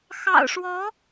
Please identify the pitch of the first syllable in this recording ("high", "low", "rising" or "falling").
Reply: low